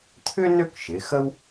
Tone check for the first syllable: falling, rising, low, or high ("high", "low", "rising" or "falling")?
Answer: high